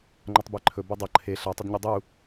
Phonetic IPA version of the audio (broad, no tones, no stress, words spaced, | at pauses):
ŋ͡ǃʌtˤbeǃʰɵ bʌdˤʌ ǃʰe ɬa tˤɵdɲudˤu